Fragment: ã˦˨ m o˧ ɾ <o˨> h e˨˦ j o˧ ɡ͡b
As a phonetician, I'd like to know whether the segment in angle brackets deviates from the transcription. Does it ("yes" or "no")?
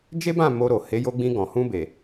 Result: no